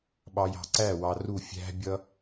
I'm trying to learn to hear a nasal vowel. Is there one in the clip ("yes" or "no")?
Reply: no